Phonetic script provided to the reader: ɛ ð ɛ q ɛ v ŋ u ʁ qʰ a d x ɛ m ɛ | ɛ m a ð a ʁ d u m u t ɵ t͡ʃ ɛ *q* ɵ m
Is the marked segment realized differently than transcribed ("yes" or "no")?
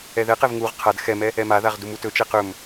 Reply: no